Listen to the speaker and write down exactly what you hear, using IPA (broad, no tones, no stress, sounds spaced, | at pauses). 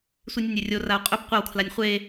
sʷ i nʲ ɵ nʲ e rʲ o r a u̯ qʼ ɵ b qʷ ɐ w kʰ l a nʲ χʷ e